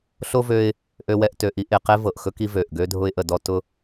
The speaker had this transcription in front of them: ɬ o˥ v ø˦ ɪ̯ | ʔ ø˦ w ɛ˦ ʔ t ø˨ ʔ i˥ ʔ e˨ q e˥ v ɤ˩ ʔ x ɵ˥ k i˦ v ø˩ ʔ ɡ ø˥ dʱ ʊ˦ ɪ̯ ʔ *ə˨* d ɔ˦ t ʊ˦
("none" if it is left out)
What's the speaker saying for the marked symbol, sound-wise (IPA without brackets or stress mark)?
ə˨